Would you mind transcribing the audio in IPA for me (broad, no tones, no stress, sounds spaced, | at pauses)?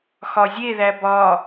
x ɒ zʲ e ð æ b ɒ